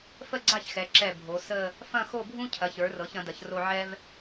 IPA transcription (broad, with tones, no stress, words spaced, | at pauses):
fə˥˧ɡ͡ǀa˥˧çxɛ˩˧ ǁɛ˧˩ bʱo˩˧sə˥˧ | fɐ̃˥˧xo˥˧bʱũ˥ cʰɐ˩˧çə˞˩˧rɤ˩˧ç ɐ̃˩˧dɐ˩˧çro˧ ʕɛ˥v